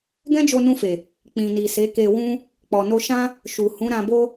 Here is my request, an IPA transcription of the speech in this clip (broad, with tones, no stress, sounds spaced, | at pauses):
ɡ ɛ̃˦ d͡ʒ o˧ n ũ˧ f e˨ | k͡p ĩ˨ n i˨ s e˨˦ k e˧ w ũ˦ | k͡p ɔ˨ n o˧ ʃ ã˦ | ʃ u˨ h ũ˨˦ ɾ ã˧ b o˦